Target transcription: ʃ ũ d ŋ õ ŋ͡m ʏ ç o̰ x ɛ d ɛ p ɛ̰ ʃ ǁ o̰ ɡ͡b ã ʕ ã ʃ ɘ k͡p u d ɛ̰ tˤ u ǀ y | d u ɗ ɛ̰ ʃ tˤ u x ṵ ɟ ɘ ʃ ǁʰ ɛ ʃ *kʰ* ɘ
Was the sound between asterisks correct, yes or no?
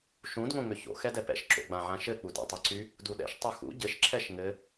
no